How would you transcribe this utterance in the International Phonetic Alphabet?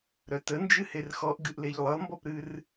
ɾœtənd͡ʒɨher xɔʔɡɨʔleʎ lˠɯlˠmbɔpɾɨr

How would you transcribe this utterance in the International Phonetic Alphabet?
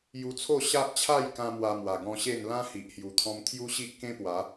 ju˧t͡sʰo˥˧ ɕa˦ʔt͡ɕʰa˥˧jkã˧ mwa˧mwa˨˩ ɡɔ̃˧ɕe˥˧n lã˦hi˨ʔ hju˨˩t̪ʰɔ̃˧m t̪ʰju˦ɕi˦ʔ kẽ˦pwa˨˦

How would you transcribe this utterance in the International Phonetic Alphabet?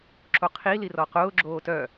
ǁoqʰi lirɔqʊː ɡ͡ǁoːtœ

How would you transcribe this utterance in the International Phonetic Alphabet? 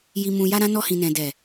ji˨mũ˨ja˧ɾã˧ nɔ˧hĩ˨nɛ̃˨ dɛ˨

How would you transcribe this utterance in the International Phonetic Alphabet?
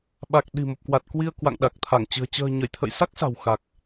ɓa˨˩k̚ ɗi̤˨˩ mo˨˩p̚kwa˨˩t̚ kwi˧ə̯kwa̰˧˨ŋɗa˨˩k̚t̪ʰa˧˩ŋ t͡ɕɨ̤˨˩ə̯ t͡ɕə̤ː˨˩ɲə˧˩jt̪ʰə̰˧˨j sa˦˥k̚sa̤˨˩w xa˨˩k̚

